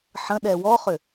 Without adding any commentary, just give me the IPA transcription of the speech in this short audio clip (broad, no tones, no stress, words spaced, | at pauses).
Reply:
ħə̃ ɗɛwɔχʏ